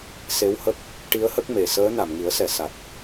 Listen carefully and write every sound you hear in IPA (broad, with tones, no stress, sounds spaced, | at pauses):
s e˧˥ w h ə˦˥ k̚ | ʈ i˧˥ ə̯ h ə˦˥ k̚ m e˨˩˨ s əː˧˥ n a˨˩˨ m ŋ i˨˩˦ ə̯ s ɛ˨˩˨ s a˨˩ t̚